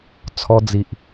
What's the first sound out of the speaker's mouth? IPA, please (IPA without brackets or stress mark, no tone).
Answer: t͡sʰ